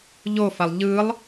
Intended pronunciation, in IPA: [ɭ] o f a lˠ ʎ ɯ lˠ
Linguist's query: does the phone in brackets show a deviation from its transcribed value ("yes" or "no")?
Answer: yes